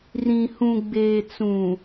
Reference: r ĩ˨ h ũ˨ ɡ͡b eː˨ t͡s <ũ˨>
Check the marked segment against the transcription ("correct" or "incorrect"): correct